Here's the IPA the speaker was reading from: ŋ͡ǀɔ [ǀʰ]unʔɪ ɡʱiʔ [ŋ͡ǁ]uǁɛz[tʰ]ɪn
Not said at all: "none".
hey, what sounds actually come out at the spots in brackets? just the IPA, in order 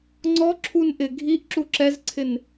ǁʰ, ǁ, ǀʰ

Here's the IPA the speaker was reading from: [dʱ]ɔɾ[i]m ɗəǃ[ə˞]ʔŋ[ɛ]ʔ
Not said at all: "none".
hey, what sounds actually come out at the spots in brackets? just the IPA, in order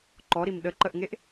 ǃ, i, ə, e

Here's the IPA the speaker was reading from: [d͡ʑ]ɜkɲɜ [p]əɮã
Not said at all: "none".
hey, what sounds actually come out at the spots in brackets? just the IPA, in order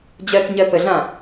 d͡ʑ, p

